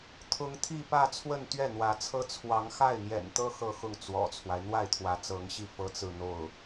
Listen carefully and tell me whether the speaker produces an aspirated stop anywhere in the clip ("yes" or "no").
yes